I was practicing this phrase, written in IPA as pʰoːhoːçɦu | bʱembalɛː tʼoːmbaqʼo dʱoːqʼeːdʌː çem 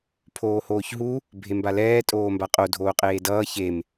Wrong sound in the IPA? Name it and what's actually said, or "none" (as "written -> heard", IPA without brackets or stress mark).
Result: none